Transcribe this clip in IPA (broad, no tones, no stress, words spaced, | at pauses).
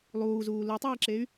lˠuːzuː lutˤiːǁey̯